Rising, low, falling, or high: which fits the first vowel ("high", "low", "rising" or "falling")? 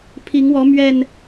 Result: rising